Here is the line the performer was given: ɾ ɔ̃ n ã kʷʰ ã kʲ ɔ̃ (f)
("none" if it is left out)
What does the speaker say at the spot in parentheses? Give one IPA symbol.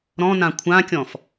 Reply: f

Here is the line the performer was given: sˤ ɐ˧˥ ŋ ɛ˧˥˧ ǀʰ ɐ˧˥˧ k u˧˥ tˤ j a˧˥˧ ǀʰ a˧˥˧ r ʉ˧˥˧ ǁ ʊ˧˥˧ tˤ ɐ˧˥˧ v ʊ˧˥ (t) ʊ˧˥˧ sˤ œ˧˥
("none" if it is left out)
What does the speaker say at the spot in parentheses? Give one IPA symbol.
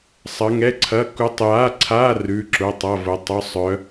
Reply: tˤ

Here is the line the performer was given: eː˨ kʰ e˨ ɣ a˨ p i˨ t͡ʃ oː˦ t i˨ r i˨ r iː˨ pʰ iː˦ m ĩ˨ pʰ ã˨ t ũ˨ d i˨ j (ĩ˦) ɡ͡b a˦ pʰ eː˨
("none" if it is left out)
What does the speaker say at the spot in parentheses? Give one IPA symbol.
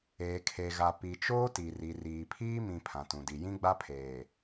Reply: ĩ˦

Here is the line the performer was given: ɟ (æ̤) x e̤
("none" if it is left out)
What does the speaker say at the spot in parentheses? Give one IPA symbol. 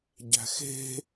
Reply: æ̤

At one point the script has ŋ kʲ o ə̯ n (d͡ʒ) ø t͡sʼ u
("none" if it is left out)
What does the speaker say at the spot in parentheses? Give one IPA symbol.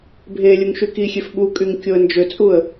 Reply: d͡ʒ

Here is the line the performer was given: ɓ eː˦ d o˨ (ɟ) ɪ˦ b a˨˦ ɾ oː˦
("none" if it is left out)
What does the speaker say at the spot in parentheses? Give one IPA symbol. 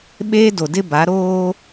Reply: d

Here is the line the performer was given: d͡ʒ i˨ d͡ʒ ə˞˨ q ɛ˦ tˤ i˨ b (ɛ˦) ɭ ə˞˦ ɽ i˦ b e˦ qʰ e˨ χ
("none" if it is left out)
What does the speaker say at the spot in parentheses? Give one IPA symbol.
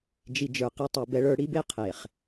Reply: ɛ˦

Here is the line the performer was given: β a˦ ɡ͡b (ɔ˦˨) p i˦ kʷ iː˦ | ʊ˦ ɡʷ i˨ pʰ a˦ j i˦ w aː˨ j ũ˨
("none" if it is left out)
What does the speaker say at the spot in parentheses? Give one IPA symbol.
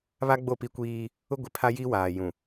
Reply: o˦˨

